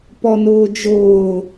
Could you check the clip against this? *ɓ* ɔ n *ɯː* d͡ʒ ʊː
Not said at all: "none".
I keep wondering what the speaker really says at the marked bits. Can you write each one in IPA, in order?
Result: p, ʊː

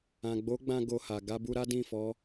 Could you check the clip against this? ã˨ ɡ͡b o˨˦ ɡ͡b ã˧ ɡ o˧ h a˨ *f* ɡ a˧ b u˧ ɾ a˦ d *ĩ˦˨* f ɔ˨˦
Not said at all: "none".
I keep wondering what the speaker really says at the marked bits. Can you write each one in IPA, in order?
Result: none, ĩ˦˨

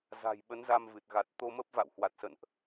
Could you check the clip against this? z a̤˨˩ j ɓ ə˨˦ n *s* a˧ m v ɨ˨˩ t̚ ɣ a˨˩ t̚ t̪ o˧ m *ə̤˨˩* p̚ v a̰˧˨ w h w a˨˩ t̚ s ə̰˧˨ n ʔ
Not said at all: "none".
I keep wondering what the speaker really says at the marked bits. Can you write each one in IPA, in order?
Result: z, ə˦˥

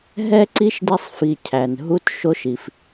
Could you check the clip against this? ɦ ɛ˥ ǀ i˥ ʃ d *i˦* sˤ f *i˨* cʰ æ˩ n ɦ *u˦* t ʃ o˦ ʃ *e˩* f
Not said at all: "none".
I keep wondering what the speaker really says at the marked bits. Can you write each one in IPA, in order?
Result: i˦, i˨, u˦, i˩

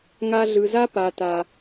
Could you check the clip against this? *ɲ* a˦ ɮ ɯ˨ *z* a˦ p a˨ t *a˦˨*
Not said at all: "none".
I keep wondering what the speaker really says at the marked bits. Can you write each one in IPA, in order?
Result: ŋ, z, a˦

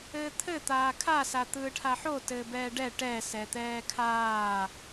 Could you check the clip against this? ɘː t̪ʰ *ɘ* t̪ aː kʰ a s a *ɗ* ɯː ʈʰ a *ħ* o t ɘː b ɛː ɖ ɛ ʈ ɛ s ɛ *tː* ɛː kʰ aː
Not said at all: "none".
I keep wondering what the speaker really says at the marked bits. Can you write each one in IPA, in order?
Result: ɘ, t̪, ħ, t̪

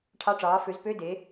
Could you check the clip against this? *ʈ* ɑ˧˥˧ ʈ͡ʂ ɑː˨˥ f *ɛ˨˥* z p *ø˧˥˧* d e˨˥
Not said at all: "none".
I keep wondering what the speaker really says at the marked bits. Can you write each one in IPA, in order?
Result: ʈʰ, ø˨˥, ø˧˥˧

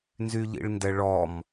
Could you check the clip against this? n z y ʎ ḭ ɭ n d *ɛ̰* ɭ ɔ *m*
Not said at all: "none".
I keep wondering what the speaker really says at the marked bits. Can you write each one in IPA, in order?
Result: ɛ, m

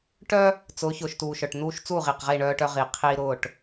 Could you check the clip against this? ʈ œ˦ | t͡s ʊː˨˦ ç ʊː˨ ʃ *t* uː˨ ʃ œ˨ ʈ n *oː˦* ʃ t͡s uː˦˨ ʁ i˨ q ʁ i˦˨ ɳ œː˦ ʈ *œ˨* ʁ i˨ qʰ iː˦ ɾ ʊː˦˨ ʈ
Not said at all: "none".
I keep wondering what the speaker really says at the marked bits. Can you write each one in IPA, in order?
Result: t, uː˦, œ˦

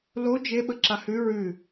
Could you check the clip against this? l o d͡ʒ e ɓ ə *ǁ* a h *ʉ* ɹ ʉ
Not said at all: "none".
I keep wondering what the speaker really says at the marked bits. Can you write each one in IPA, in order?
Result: ǁ, ʉ

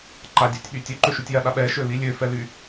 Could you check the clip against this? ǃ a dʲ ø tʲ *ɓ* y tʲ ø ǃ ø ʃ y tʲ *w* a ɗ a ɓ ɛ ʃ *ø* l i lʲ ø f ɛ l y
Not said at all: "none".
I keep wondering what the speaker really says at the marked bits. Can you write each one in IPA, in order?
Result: ɓ, j, ø

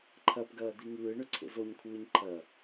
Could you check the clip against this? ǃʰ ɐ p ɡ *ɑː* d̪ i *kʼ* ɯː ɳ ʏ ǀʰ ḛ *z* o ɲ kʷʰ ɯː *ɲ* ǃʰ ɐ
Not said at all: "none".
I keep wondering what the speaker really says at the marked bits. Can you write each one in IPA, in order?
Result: ɐː, ŋ, z, ɲ

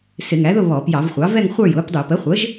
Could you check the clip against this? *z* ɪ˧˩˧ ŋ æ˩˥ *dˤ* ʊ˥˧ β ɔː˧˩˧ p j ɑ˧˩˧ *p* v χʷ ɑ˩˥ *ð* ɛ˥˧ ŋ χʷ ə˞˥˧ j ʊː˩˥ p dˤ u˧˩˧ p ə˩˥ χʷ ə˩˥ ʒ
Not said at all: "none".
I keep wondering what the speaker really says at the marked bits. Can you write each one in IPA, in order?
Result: s, ð, none, v

